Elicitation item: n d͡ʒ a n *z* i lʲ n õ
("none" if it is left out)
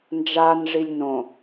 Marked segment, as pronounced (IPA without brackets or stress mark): ʐ